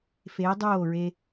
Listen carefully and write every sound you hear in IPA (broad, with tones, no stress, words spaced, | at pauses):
feː˨˦dˤoː˦˨ɹe˧